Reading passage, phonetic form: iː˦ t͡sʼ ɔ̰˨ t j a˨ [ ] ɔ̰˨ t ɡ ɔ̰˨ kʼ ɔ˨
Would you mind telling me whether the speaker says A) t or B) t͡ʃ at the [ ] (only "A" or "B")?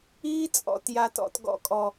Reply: A